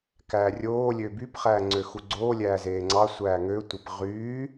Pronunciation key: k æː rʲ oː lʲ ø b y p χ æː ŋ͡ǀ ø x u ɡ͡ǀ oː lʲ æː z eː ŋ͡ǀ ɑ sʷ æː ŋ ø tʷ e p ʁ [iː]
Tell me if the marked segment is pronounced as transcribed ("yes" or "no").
no